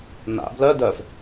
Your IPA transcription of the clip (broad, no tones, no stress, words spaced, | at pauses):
na̰ blœ dœf